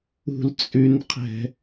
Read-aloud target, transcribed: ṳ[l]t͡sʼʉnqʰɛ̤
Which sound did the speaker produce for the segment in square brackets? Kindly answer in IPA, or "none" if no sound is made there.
l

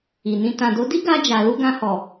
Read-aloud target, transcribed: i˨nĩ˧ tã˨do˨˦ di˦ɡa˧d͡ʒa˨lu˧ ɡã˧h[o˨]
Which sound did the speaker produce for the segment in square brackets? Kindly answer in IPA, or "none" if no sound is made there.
ɔ˨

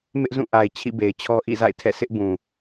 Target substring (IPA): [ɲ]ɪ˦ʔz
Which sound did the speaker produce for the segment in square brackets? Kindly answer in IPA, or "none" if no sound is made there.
m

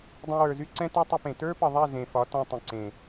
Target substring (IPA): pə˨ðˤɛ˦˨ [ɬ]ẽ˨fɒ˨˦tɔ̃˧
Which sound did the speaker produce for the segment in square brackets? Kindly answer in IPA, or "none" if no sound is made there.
z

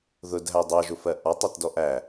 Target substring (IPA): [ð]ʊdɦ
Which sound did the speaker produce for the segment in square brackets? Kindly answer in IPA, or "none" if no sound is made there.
ð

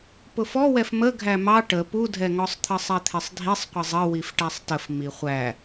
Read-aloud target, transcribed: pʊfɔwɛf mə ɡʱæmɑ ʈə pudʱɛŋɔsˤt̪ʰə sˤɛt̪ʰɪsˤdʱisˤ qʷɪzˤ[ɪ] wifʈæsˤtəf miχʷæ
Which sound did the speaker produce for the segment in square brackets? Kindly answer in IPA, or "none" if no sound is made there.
ə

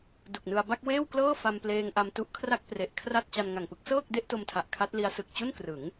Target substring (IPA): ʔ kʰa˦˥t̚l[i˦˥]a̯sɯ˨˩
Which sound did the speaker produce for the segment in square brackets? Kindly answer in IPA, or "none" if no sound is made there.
i˦˥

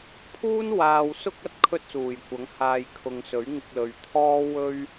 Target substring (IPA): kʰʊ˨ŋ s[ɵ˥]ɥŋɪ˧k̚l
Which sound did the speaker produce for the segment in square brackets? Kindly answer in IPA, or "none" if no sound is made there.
ɵ˨˥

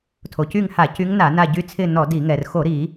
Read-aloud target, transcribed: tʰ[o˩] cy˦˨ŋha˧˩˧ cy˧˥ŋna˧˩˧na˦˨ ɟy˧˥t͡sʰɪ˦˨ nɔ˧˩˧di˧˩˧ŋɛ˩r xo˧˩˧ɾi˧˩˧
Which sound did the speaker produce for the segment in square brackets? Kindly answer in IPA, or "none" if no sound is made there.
o˩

